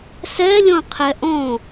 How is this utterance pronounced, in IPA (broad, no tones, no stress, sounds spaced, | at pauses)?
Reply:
s ɛ lʲ ɔ̃ qʰ ɛ ʔ ɔ̃